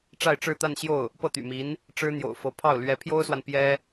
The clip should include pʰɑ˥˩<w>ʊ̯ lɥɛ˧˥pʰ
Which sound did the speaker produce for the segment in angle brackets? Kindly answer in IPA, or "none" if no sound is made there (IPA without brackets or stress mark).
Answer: none